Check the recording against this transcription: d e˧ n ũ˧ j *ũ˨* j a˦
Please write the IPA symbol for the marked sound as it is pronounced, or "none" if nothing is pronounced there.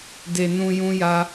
ũ˦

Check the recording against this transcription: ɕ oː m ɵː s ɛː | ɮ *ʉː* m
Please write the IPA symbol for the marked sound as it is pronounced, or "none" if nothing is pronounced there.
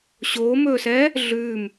ʉː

